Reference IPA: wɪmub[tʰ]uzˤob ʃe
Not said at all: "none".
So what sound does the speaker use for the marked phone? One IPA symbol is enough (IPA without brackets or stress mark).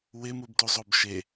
t